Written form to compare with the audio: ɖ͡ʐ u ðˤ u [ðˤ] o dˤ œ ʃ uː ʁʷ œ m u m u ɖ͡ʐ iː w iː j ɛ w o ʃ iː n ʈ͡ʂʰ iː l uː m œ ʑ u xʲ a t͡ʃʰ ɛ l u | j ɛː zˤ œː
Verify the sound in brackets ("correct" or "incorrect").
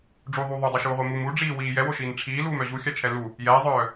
correct